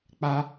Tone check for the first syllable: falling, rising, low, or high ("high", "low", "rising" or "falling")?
high